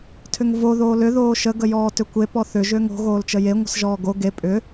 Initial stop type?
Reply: aspirated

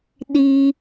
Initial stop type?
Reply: implosive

